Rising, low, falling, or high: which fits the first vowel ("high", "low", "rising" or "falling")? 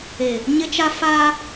low